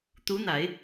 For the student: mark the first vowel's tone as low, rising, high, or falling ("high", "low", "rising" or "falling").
rising